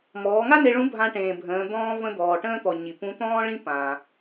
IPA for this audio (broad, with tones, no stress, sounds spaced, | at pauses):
m ɔː˩˧ ŋ a˥ n e˧ ɭ ũ˧˥ bʱ ã˧ ʈ ẽː˩ bʱ ə̃ː˩˧ d̪ ɔ̃ː˧ v ə̃˧ d̪ ɔː˩ ʈ ə̃ː˥ t̪ ɔ˩ ɲ i˩ p ũ˧˥ t̪ ɔ̃ː˥ ɭ ĩ˥ p ã˩